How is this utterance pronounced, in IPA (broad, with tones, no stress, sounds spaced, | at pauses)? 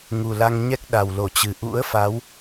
ŋ u˨˩ l a˧ ŋ ɲ ɛ˦˥ k̚ ɗ a˨˩ w l o˧˩ t͡ɕ ɨ˨˩ ʔ ṵ˧˥ ə̯ f a˨˦ w